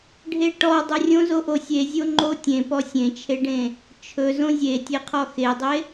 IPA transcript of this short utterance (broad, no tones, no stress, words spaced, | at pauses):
ɖʱeʈɔ dˤorʲõzoʔo sʲe zʲoŋ͡ǃo tʲẽpɔ sʲẽt͡ʃʰeɖẽ | t͡ʃʰɵ zõzʲetʲeqʰɔ xedˤe